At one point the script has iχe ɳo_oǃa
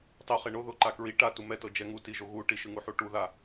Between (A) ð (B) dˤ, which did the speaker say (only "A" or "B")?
A